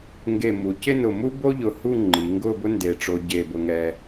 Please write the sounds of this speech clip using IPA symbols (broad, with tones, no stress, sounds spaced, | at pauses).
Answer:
ŋ ɡ e˧˩ m u˩˧ c ɪ˥˧ n ʊ˧˩ m u˥ b o˥ ʎ ʊ˧˩ h u˥˧ ŋ͡ǃ i˩˧ ŋ ɡ ʊ˥˧ b ʊ˥ n d e˧˩ ʈ͡ʂ o˧ ɟ e˥˧ b ʊ˥ ŋ ɛ˧